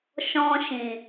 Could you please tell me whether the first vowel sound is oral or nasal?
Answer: nasal